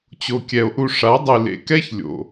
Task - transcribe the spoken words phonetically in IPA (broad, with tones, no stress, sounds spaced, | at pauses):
t͡ɕ o˨ kʲ ɛ˨ o̯ ʔ u˧ ʂ a˨˦ dˤ ɨ˨ l ḛ˨ k ɛ˦ ç lʲ o̰˨